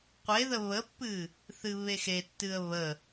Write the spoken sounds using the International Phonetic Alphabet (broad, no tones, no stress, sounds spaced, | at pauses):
qʷ e ð ə β ə pː ɨ | θ ɨ β e x e tː ɨ ə̯ β ə